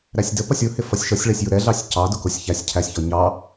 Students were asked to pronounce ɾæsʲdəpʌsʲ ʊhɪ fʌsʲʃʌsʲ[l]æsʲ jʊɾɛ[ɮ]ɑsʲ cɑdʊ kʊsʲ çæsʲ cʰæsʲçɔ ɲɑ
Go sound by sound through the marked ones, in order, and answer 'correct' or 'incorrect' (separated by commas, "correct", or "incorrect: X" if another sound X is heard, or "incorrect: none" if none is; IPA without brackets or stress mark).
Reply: incorrect: ɭ, correct